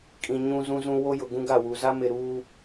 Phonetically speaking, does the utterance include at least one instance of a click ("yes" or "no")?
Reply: no